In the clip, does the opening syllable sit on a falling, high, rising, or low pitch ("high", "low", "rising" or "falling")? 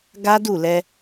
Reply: high